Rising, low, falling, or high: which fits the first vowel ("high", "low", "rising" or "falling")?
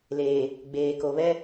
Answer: low